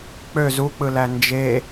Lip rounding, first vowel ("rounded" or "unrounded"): rounded